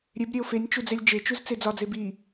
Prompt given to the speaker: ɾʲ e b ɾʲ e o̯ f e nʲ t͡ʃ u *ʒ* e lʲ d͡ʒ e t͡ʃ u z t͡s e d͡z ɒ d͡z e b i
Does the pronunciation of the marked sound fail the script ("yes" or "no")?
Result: yes